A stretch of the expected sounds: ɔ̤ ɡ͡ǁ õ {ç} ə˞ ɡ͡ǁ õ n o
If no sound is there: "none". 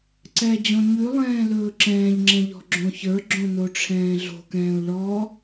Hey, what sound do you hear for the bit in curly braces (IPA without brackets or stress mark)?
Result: ç